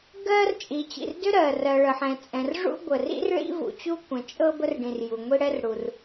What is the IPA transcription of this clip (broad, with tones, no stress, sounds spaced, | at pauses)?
ɡ ɜ˥ r t͡ʃʼ i˩ t͡ɕ ḭ˩ r d ʏ˥ ɾ ɜ˩ r ɜ˩ ɭ ə˩ ħ ɛ̃˩ t͡sʼ ɛ̃˩ r ʐ ṵ˥ ɡʷ ə˩ r ḭ˥ r ɭ ḭ˥ v ṵ˩ t͡ɕ u˥ kʷ ɛ̃˩ t͡ʃʼ ɤ˥ b ə˥ r ɖ ĩ˩ r j u˩ ŋʷ i˥ ɽ ɛ˥ r ɽ u˩ r